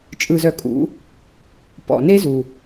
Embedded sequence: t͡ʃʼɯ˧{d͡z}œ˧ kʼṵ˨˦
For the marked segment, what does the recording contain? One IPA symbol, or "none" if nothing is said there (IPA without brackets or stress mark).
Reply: z